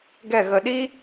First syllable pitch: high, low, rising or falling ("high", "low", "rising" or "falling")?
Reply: falling